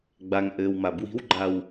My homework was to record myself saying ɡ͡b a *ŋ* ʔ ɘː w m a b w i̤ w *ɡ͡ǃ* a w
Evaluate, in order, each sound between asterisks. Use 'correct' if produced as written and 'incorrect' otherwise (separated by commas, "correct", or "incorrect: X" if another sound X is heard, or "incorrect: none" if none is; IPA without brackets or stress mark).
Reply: correct, correct